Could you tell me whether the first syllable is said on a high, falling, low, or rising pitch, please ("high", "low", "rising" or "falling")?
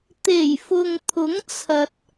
low